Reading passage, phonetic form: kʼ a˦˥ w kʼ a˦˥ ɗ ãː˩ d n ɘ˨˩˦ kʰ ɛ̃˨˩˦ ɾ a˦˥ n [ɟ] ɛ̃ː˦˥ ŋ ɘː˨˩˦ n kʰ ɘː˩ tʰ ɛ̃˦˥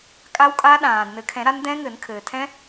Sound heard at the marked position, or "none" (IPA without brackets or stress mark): d